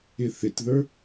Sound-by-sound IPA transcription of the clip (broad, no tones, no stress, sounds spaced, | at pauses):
ɪ θ ɪ t ð ə˞